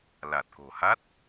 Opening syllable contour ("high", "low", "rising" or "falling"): low